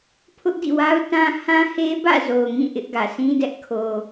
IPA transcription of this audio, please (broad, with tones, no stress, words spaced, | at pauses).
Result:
pʰʊ˦ʔdḭ˦˨wa˦ʊ̯ tã˦ hã˦he˦bä̰˦˨ zo˨ʊ̯ŋĩ˦˨ ʔɪ˦ʔɡä˨ sĩ˦dɛ˦ʔ kʰo˨